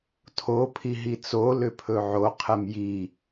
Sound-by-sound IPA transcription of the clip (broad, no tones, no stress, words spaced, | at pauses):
tʰo pʰiɦit͡so lʏpʰɵʕo qʰɛmji